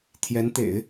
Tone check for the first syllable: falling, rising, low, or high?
rising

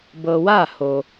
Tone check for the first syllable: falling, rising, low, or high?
low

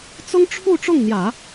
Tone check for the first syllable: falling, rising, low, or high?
high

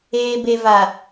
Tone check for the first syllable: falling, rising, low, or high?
low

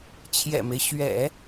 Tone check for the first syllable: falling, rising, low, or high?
low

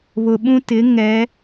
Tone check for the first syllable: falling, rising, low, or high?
low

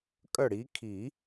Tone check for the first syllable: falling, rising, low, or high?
falling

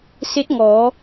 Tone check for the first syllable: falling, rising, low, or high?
rising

